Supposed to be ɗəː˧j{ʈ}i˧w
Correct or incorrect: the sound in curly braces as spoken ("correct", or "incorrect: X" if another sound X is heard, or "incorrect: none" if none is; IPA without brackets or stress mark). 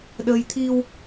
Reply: incorrect: t̪ʰ